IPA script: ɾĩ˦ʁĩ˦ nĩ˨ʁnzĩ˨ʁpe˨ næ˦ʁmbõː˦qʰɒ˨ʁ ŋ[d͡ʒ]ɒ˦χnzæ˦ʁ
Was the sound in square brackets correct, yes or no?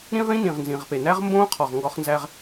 no